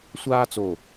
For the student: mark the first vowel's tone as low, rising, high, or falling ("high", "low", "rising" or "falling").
high